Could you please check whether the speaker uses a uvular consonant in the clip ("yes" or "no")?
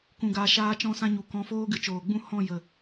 no